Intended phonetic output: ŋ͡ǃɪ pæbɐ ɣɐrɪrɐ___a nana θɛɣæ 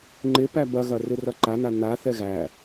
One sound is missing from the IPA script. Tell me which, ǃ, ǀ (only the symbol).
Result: ǃ